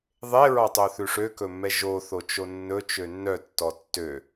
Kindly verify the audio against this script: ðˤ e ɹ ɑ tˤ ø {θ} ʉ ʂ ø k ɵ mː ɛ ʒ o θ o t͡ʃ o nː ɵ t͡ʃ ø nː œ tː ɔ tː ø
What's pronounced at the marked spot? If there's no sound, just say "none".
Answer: θ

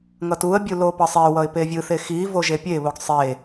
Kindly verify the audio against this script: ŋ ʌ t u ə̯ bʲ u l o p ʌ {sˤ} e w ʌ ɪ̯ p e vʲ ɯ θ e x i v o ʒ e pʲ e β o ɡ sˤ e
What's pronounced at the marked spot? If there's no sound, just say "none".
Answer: sˤ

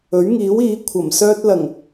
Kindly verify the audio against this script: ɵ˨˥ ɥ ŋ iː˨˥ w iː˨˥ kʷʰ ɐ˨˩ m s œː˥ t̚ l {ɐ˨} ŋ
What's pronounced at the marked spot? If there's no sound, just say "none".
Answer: ɐ˨˩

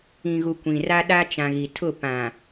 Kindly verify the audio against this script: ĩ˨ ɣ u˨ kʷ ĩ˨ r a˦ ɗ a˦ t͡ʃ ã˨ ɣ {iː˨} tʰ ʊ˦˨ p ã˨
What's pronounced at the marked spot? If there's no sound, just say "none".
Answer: i˨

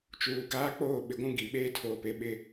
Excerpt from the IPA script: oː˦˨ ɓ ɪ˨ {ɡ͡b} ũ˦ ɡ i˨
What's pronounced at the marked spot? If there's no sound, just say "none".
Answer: ɡʷ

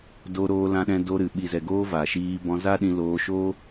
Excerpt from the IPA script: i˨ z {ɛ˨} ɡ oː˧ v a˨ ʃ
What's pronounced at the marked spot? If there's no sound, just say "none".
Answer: ɛ˨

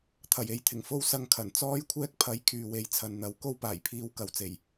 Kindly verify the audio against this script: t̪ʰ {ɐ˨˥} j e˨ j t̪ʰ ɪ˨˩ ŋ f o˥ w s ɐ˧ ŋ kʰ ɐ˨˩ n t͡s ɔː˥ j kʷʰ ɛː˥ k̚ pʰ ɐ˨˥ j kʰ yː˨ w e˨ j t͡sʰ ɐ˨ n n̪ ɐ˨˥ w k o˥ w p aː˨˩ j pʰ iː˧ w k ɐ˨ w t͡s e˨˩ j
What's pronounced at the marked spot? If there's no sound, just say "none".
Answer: ɐ˨˩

